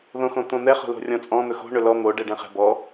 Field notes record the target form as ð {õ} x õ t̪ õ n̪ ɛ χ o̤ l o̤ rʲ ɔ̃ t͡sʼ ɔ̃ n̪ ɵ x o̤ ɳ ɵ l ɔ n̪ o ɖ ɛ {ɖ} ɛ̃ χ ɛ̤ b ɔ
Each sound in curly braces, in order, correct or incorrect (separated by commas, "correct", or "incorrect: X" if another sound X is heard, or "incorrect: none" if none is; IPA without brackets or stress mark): correct, correct